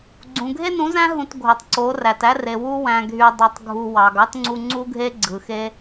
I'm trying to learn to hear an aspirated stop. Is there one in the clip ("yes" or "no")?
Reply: no